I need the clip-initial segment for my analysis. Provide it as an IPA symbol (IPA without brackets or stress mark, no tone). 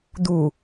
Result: d̪